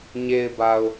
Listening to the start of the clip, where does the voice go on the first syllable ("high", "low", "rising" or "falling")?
low